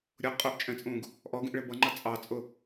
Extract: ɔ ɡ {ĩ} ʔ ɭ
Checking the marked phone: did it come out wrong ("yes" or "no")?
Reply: no